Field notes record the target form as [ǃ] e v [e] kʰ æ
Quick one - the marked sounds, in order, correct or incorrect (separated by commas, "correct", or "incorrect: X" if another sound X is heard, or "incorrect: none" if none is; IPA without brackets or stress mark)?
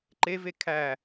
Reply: correct, correct